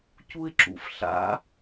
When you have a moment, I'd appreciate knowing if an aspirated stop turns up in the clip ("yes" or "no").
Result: no